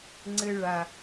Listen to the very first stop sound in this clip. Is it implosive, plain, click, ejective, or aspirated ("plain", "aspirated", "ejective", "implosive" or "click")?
click